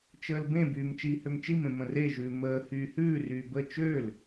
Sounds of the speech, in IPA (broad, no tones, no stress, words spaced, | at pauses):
t͡ʃəːlbẽbyːm t͡ʃiːhømt͡ʃimẽ mə̃reʒʉː məː hyːhʉːryː bə t͡ʃøl